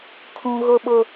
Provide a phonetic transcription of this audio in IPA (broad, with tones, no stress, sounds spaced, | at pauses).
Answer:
kʰ ũ˦ ɣ ʊ˦ ɓ ʊ˦